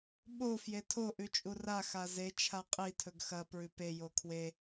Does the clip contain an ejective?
yes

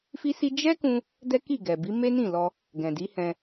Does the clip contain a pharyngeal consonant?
no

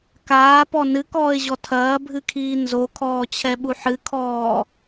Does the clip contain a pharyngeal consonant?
yes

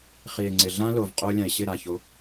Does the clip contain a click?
yes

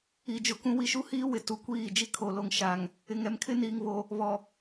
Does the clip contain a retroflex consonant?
no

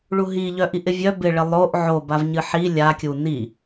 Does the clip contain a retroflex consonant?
yes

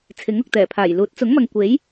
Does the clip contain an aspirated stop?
yes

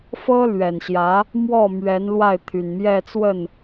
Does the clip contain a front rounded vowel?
yes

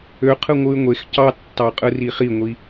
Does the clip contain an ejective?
yes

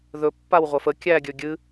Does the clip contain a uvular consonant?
yes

